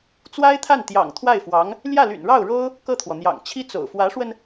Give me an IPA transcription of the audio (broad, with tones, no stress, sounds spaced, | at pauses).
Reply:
t͡s w a˥ ɪ̯ t̪ʰ a˥˩ n t̪ j ɑ̰˨˩ ŋ t̪ʰ w a˥˩ ɪ̯ f w ɑ˧˥ ŋ | l j ä˥˩ l y̰˨˩ n ɻ ɑ˥˩ ʊ̯ ɻ o˥ ʊ̯ | k ɤ˥˩ t̪ʰ w ɔ˩ n̪ j ɑ̰˨˩ ŋ t͡ɕʰ i˥ t͡s o̰˨˩ ʊ̯ f w ä˧˥ ʂ w ə˧ n